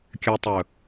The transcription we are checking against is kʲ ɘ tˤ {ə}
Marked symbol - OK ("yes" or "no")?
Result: no